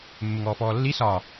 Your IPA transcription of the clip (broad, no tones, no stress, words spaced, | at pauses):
mːɪŋɔːfɔːlːi sɒ